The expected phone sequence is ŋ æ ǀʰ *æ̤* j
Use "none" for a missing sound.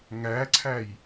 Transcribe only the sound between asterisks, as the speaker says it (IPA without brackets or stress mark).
æ